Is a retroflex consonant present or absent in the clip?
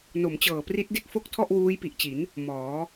absent